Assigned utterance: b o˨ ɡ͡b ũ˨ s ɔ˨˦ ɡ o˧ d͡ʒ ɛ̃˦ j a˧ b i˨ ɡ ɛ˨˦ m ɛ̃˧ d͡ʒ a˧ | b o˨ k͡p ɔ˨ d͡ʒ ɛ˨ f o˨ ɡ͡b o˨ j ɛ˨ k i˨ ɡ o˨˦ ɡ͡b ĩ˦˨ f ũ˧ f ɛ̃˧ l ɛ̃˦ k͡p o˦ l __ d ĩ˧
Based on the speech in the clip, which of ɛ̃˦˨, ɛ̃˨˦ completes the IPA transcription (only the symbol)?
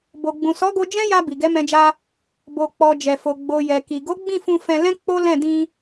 ɛ̃˦˨